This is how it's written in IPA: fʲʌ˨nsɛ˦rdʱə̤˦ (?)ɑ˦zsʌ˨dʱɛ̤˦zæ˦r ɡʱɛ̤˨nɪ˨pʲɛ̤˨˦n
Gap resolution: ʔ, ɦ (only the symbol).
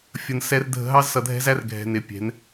ɦ